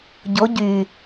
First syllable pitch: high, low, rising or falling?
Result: rising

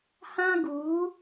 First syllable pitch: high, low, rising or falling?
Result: high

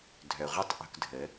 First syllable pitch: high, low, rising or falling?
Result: low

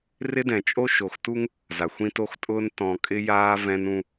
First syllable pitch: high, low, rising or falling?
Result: high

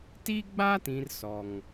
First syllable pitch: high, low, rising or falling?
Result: high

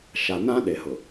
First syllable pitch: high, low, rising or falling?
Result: low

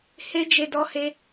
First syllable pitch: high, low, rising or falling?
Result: high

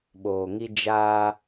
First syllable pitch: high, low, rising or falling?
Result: low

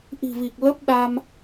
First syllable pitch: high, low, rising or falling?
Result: low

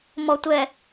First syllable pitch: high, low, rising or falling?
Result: low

